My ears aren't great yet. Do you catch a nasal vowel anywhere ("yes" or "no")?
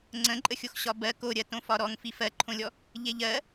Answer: yes